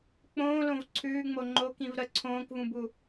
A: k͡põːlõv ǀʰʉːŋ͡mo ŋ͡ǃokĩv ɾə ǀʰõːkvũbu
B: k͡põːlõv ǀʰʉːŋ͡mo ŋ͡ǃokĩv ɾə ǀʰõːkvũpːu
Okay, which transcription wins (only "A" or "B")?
A